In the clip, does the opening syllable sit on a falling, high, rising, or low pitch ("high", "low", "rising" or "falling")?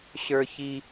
high